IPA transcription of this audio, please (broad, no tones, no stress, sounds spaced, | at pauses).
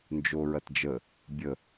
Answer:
n d͡ʒ o ɹ ɐ t d͡ʒ ə | bʲ ə